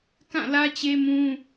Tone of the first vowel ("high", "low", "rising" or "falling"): falling